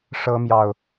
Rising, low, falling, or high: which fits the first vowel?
high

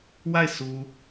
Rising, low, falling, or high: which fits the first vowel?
falling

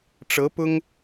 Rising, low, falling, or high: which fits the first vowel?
rising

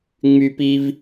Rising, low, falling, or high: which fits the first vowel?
high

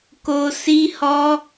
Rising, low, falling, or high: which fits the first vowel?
high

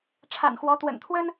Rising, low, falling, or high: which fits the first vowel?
low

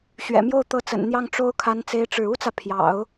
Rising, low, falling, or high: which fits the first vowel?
low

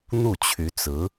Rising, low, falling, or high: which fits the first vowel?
falling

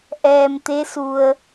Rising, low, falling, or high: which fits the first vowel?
low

